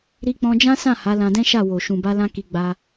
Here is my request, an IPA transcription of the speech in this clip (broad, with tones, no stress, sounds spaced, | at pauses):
ɾ i˧ k͡p ɔ̃˧ d͡ʒ ã˦ s ã˦˨ h a˨˦ l ã˧ d ɛ̃˦ ʃ a˦˨ w o˨ ʃ ũ˨ b a˧ l ã˧ k i˧ ɡ͡b a˧